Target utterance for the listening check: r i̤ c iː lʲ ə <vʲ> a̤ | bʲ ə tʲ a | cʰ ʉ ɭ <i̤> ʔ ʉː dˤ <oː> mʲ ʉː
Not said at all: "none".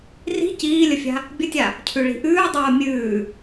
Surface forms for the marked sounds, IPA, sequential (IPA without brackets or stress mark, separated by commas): fʲ, i̤, oː